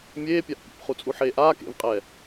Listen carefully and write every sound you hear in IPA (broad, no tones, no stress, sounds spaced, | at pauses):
mʲ eː pʲ a ʔ pʲ ḛ p χ u t͡sʼ u ħ eː ʔ aː k ḛ v qʼ ɛː